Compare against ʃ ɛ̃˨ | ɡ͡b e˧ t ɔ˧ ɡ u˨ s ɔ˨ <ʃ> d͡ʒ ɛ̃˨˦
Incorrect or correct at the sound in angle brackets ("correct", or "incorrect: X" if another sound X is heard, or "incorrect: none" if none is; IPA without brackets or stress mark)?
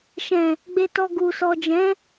incorrect: none